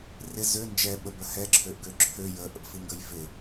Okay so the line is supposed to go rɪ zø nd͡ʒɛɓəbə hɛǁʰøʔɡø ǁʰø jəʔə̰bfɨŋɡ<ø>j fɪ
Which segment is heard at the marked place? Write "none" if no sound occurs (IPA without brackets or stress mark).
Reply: ə